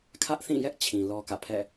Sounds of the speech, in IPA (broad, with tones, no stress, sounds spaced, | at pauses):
kʰ ä˦ ʔ θ ĩ˦˨ j ɛ˦ ʔ t͡ɕʰ ĩ˨ l ɔ˦ k ä̰˦˨ pʰ ɛ̰˦˨